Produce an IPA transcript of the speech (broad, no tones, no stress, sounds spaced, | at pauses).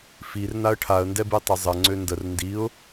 f i r n a ə̯ ʈʰ a ə̯ n d ɛ b i tˤ ə zˤ ə ŋ͡ǀ ø n d ə r n d i ʊ̯